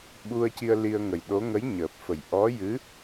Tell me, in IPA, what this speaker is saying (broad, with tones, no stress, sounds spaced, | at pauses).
ɓ u˧ ə̯ c i˧ ə̯ l i˧ ə̯ ŋ ə˨˩ j ɗ o˧˥ ŋ ə˧˥ j ɲ əː˨˩ p̚ f ə˨˩ j ʔ ɔ˧˥ j ɨ˧˥